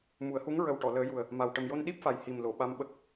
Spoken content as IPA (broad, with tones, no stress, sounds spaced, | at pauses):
m u˨˩˦ ə̯ h u˧˥ ŋ ɹ ə˨˩ w ʈ ɔ˨˩˨ l əː˨˩˦ j u˨˩ ə̯ | m a˨˩ w ʈ ə˨˩ m j o˧ n ɗ i˦˥ p̚ f a˨˩ j h i˨˩ m l o˨˩˨ ɓ a˧ m ɓ ə˦˥ k̚